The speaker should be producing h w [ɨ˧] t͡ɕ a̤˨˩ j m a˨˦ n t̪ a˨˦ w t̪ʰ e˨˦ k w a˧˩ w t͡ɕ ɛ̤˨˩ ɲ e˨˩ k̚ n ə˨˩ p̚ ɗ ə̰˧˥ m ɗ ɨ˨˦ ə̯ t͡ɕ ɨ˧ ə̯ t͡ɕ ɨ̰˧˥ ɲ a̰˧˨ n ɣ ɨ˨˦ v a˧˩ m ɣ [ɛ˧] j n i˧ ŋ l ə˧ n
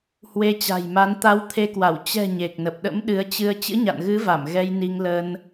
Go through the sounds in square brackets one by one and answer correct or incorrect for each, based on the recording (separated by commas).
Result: incorrect, correct